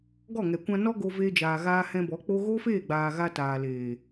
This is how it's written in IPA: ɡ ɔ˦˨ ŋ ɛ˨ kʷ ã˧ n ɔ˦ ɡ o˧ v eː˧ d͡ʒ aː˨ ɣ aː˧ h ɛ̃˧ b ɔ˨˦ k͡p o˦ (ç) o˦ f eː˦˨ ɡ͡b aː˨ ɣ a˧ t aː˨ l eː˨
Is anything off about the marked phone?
yes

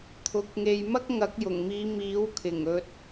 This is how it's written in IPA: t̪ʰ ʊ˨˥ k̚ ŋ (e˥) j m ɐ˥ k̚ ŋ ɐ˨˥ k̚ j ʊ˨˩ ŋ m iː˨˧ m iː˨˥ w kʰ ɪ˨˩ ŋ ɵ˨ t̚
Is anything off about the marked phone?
yes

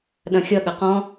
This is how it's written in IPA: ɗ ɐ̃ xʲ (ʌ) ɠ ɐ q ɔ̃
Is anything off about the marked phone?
no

